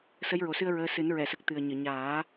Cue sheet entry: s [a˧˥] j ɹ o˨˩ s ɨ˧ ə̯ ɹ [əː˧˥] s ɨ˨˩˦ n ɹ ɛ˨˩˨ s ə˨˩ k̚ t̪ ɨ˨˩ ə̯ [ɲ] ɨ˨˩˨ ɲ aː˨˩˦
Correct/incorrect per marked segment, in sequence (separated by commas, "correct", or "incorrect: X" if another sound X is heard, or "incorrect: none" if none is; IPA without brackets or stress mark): incorrect: ə˧˥, correct, correct